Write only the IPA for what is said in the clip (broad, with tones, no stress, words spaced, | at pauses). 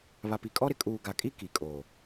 βa˨pi˨kʼɔ˦ɾɪ˨ kʼuː˨ɡa˨kʼi˦ ki˨kʼo˨